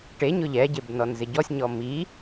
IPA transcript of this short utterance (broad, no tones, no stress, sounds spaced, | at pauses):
ʈ e ɲ ʊ ʎ ɛ ɟ e b n ɔ n z ɪ ɟ ɔ sʲ ɲ ɔ m i